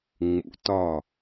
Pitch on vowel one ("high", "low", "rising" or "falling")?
rising